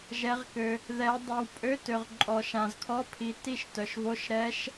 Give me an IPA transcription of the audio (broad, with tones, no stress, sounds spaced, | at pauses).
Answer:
ʒ ɛ˨˦ ʁ k ø˨ | ð ɛ˨˦ dˤ ø˨ w pʼ ø˧˥˧ t ø˨ ʁ ǃʼ ɔ˨ ʃ ã˨ z kʰ ɔ˧˥˧ pʰ i˨˦ t i˥˩ ʃ t œ˨ ʃ v o˧˥˧ ʃ ɾ ɛ˦˥ ʃ